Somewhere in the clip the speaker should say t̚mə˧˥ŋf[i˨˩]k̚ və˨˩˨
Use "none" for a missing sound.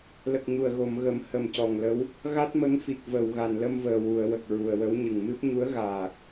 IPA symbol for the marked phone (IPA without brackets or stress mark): i˨˩